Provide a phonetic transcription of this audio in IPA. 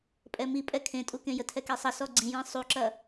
pʼ ɛ m i pʼ ɛ kʰ ẽ tʼ u k ẽ j ə tʰ ɛ k e sˤ ɐ s ɔ ɡ͡ǀ ĩ j ĩ sˤ u ǁ ɐ

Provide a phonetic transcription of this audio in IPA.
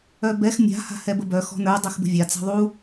œ b ɛ x mʲ a̤ h a̤ h ɛ b ə b œ x ɔ̤ n ə˞ dˤ ɛ x b ə̤ vʲ a t͡s a̤ ðˤ u

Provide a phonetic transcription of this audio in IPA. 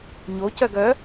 ɲ o c œ ɡ œ

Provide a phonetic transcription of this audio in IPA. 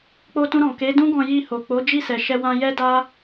k͡p o˧ t ũ˧ ɾ ɔ̃˨ k e˨˦ d ũ˦ ɡ ɔ̃˧ j i˧ h o˨ k͡p o˨˦ d͡ʒ i˦˨ s ɛ˨ ʃ ɛ˧ w ã˧ j ɛ˦ d a˦

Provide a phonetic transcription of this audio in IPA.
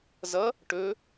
z ʌ | ʈ ɵ

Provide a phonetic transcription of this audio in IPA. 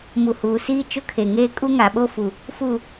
m u˨ h uː˨ s iː˦ t͡ʃ ʊ˦ kʰ e˨ ŋ eː˦ kʼ u˦ ŋ a˨ ɓ o˦ f u˨ | f u˦˨

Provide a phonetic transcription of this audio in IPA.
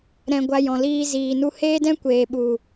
ɾ ɛ̃˧ ɡʷ a˧ j ɔ̃˨ l iː˧ z iː˨ n u˧ h eː˦ d ɛ̃˦ kʷ eː˨ ɓ u˨

